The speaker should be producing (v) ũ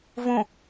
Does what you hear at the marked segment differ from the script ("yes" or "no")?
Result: no